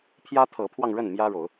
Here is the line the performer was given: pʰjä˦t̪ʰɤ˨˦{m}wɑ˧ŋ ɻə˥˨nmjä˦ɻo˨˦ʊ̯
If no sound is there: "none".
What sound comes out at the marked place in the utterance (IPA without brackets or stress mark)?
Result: pʰ